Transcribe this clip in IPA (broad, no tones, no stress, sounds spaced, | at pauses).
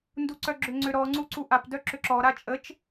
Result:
n d u ǀ œ ɡ͡ǁ ʏ ŋ͡ǀ ʏ ɾ ɔ ŋ͡ǀ u ǀ u ʔ a p d œ ǁ ʏ ǁ ɔ ɾ a t͡ʃʼ ə t͡ʃ